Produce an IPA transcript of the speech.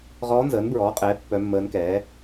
ʁ ɔː˧˥ n z əː˩˥ n b ɹ ɔː˩˥ qʼ ɛː˩˥ pː œ˧˥ mː əː˧˥ n k ɛː˩˥

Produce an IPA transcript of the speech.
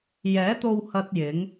j ɛː˨˥ t̪ o˧ w h ɐ˥ t̚ j ɪ˨˥ ŋ

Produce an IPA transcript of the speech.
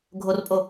ɡʱ o r pʼ o

